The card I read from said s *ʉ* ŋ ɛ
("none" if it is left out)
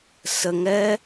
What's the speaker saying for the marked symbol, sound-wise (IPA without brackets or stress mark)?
ə